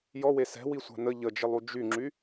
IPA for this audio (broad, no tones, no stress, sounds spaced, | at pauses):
j ɔ w e s ɛ̤ w i sʷ a̤ n ə ʎ ə d͡ʒ ə lˠ u d͡ʒ y ŋ͡ǁ y